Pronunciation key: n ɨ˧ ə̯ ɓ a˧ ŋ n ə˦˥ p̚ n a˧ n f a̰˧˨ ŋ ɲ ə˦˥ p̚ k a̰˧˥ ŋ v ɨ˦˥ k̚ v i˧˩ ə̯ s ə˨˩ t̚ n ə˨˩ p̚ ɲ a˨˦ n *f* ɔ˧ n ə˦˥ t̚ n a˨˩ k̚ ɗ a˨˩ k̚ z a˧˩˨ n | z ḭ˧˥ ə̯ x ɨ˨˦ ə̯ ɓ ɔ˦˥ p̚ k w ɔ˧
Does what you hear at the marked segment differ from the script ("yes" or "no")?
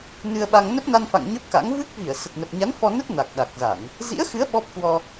no